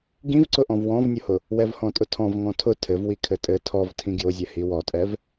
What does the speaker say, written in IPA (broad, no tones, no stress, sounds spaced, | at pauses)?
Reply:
ɡ ĩ v ǀ ʊ ʔ ɔ̃ v w ɔ̃ v nʲ ʊ h ʊ | w ɛ v h ɔ̃ tʼ ʊ tʰ ɔ̃ v ŋ ɔ̃ tʰ ʊ tʰ ɘ v w i kʰ ɘ tʼ ɘ tʰ ɔ v tʰ ĩ ɡ j ʊ zʲ ɛ h i w ɔ tʼ ɛ v